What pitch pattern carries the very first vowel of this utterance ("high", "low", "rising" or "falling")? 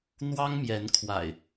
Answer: high